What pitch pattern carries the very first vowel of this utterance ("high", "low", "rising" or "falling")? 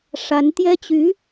rising